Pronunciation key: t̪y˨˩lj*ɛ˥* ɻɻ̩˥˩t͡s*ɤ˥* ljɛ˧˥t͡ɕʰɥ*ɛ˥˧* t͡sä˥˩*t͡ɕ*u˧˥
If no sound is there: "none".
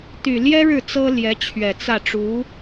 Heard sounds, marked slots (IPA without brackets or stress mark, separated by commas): ɛ˥, ɤ˥, ɛ˨˩, ʈ͡ʂ